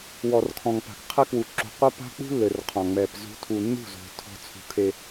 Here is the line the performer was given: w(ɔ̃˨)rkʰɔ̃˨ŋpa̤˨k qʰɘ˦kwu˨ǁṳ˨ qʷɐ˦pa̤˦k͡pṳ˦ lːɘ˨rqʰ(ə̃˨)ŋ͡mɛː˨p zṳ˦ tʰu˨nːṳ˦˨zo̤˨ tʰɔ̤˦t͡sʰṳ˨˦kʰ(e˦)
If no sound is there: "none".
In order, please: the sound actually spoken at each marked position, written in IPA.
ɔ˨, ɔ̃˨, e˦

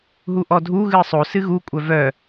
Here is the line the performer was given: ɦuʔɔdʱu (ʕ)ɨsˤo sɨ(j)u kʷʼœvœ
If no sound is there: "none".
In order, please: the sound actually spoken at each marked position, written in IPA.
ɣ, ɣ

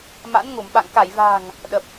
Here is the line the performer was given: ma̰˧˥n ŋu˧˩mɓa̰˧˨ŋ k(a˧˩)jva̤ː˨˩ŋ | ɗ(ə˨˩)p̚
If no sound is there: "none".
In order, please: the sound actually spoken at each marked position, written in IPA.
a˧˩, ə˨˩

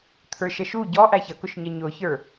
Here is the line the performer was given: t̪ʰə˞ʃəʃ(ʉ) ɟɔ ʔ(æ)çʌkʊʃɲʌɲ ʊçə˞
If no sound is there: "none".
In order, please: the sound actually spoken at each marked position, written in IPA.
u, æ

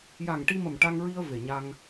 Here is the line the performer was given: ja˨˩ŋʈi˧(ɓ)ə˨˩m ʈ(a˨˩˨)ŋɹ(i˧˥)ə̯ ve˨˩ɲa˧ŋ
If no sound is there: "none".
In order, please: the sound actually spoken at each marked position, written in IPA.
m, a˧, i˧

